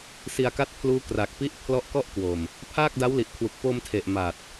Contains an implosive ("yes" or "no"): no